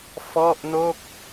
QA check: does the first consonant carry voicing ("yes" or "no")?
no